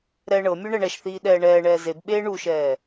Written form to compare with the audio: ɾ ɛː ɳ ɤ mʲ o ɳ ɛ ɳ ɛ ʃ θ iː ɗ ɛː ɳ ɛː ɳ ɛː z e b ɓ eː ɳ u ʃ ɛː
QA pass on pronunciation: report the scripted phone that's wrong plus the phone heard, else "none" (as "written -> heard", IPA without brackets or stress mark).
none